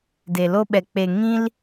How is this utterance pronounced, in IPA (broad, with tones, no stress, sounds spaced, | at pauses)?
d e˨ l o˦ ɓ ɛ˨ k͡p e˨ ŋ ĩ˦ l